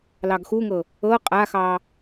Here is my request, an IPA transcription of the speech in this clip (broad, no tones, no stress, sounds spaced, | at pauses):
l ɑ ɡ x u ŋ ɤ | ɤ qʼ a x ɑ